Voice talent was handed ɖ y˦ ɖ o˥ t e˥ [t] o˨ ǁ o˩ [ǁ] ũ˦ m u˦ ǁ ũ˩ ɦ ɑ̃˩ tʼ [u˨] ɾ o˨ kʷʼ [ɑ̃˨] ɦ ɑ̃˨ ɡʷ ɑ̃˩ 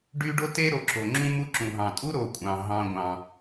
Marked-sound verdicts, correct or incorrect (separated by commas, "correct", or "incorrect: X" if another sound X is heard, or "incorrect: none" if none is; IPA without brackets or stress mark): incorrect: ɾ, incorrect: ŋ͡ǁ, incorrect: u˥, incorrect: ɑ̃˩